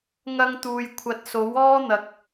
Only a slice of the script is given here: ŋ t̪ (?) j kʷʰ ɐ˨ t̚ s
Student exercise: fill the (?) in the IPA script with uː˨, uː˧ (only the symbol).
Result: uː˨